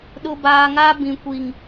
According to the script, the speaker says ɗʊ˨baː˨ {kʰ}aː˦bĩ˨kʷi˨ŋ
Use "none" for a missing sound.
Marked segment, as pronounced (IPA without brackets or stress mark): ŋ